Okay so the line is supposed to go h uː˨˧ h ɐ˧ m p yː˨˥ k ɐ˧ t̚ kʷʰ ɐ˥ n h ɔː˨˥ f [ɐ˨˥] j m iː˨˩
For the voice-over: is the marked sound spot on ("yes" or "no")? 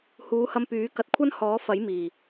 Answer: yes